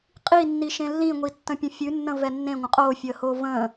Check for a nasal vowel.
present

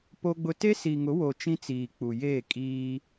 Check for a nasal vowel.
present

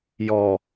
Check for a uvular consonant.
absent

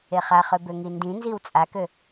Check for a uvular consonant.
present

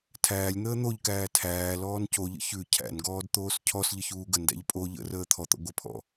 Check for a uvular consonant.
absent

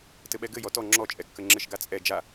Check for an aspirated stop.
absent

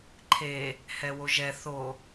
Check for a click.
present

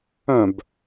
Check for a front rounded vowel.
present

